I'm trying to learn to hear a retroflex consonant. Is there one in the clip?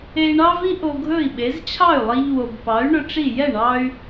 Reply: yes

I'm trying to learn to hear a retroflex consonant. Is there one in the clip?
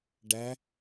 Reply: yes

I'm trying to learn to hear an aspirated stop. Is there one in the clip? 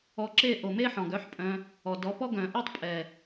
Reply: no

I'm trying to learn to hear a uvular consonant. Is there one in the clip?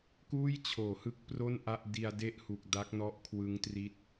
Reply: no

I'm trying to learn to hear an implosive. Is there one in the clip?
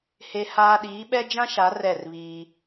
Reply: yes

